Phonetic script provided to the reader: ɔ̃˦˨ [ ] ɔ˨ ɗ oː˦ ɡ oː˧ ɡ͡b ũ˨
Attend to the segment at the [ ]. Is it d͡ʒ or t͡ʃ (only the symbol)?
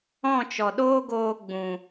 t͡ʃ